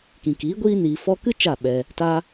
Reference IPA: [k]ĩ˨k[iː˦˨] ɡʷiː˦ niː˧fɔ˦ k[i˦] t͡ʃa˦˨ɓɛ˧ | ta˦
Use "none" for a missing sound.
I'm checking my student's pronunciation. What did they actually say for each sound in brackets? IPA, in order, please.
k, iː˨˦, ɨ˦

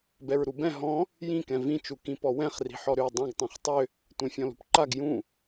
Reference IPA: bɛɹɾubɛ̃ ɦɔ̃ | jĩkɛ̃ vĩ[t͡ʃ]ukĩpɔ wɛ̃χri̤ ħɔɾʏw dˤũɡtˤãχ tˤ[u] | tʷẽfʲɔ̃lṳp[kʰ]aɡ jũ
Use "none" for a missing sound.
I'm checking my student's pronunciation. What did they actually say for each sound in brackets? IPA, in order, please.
t͡ʃ, ʏ, ǃ

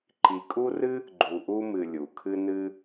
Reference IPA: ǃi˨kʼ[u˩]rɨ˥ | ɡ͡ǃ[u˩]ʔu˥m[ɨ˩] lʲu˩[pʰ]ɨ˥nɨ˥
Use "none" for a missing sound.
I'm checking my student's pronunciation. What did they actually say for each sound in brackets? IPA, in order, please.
u˥, u˨, ɨ˨, kʰ

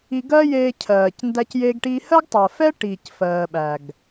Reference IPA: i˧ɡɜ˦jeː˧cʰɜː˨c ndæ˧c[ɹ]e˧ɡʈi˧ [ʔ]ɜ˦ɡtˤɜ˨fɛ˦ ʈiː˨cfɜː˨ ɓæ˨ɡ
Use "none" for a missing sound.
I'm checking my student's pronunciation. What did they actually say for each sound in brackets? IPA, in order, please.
j, h

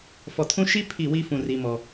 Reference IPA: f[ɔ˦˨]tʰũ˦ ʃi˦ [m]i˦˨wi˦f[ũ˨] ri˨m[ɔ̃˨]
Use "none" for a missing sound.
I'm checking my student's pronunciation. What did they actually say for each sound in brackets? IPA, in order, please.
ɔ˨, pʰ, ũ˨, ɔ˨

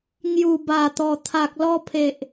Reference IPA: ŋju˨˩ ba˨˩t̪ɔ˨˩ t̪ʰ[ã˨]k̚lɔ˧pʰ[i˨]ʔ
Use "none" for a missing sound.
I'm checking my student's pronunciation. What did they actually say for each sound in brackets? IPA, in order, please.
a˨, e˨

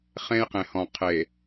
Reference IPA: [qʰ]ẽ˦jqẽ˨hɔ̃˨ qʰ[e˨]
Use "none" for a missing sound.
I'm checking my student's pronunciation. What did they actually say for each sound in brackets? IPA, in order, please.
χ, e˨

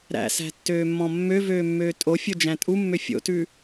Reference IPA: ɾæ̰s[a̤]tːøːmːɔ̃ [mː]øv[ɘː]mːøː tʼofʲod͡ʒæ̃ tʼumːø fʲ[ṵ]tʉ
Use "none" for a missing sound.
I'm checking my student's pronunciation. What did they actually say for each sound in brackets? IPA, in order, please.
æ̤, mː, øː, o̰

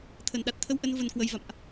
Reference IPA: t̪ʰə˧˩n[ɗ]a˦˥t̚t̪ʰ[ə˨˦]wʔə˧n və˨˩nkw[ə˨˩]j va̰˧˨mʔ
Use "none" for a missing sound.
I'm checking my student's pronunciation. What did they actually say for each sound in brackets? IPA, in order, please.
ɗ, ə˧, ə˨˩

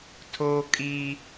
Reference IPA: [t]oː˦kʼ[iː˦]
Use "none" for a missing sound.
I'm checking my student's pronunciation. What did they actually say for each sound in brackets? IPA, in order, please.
tʰ, iː˦

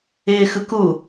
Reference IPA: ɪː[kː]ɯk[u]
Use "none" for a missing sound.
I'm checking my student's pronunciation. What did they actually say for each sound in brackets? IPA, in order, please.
x, u

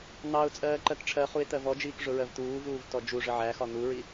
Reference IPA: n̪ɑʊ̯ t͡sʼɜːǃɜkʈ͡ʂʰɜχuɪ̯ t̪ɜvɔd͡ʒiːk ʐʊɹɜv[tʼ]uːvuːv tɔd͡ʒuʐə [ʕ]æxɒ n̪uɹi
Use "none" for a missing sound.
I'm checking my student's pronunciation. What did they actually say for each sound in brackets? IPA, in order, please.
t̪, ʕ

